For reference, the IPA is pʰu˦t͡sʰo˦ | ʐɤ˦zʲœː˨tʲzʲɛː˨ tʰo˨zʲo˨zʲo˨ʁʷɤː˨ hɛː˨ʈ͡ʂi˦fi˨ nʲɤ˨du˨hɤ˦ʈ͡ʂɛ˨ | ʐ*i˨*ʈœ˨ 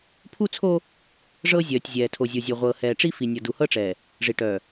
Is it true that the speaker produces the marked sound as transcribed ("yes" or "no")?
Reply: yes